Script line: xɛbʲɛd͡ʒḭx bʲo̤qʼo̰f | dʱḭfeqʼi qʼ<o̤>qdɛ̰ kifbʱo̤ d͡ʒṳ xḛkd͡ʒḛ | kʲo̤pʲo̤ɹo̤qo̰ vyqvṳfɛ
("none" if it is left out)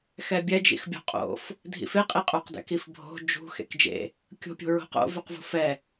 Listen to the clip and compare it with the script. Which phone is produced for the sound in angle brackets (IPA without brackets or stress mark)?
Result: o